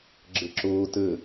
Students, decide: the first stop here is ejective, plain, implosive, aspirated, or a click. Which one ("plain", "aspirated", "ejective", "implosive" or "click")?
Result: click